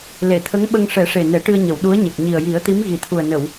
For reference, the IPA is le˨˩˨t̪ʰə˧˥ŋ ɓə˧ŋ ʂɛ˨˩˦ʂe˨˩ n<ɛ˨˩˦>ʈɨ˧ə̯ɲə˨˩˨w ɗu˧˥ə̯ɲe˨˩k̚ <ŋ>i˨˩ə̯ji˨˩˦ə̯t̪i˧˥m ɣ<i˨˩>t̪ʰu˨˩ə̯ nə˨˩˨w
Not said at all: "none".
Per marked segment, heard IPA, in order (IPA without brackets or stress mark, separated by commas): ɛ˨˩˦, ɲ, i˨˩